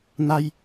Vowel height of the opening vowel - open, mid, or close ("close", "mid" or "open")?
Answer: open